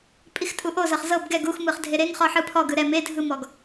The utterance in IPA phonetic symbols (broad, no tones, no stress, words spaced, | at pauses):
pʼixtʼuʔozɤχ zɤb ɡɛɡ uxmɯχ dʱeɾeŋχɔ ħɯpʰɔɡɯ ɾɛ me dʱɯmɔɡ